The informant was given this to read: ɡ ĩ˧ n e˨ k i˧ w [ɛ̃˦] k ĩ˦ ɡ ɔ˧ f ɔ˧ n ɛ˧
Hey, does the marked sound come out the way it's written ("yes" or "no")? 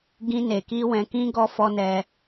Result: no